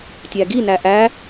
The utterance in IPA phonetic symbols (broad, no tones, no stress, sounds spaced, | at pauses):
tʲ æ ɡ i n æ ʔ æ